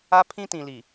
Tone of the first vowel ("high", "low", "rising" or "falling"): high